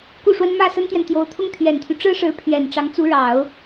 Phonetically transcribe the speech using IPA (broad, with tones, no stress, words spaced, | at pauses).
ku˥˩ʂwə˥n mä˥˩ sə˥nt̪jɛ˨nt̪jo˧˥ʊ̯t̪ʰʊ˥ŋ t̪ʰɥɛ˨˩nt̪ʰy˦ ʈ͡ʂɻ̩˥ʂɻ̩˧˥ pʰɥɛ˨˩n ʈ͡ʂɑ˧˥ŋt͡su˧˥ɻɑ˨˩˦ʊ̯